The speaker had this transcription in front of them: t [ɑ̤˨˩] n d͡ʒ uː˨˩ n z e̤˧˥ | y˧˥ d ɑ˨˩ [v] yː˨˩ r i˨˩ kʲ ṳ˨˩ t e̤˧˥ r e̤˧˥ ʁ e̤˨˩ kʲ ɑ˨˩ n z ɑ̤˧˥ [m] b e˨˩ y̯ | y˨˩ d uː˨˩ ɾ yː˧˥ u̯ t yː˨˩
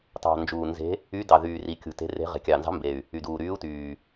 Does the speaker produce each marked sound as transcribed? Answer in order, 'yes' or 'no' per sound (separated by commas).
yes, no, yes